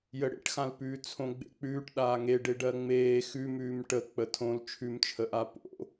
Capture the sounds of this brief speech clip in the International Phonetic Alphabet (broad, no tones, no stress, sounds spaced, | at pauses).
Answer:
j ə ɽ ḛ ʈ x ã l p ʉː t͡sʰ õ ɡ͡b ḛ k͡p ʉː ʈ ɗ aː ŋ e ɖ e ɖ ɜ ŋ͡m eː x ʉ m ʉː m ʈ ə k͡p ə tʰ õ l t͡ʃʰ ʉ m t͡ʃʰ ə ʔ a p o̰